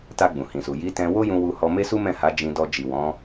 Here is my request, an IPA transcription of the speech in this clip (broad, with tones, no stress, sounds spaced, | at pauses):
t a˧ ɡ͡b ũ˨ h ĩ˨ s u˨ j i˨˦ t ɛ̃˧ w o˦ j ũ˧ w u˧ h ɔ˧ m e˦ s u˦ m ɛ̃˦˨ h a˨˦ d͡ʒ ĩ˧ d ɔ˧ d͡ʒ i˨ w ɔ̃˨˦